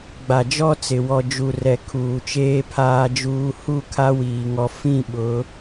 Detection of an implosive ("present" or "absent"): present